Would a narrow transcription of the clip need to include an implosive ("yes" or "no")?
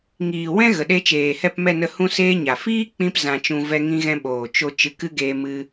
yes